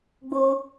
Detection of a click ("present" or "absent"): absent